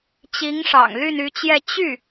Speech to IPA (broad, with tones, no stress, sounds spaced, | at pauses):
t͡ɕ i˧˥ ŋ ʂ ɑ̰˨˩ ŋ l y˥˩ n y˧˥ t͡ɕ j ɛ˥˧ t͡ɕ y˥˩